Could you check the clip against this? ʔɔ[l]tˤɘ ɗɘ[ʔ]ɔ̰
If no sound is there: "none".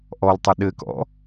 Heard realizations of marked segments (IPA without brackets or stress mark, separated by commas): l, k